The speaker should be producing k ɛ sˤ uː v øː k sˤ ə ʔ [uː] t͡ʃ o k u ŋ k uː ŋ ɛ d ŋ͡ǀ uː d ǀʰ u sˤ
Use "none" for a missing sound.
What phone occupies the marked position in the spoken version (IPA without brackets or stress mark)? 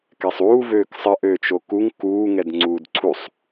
øː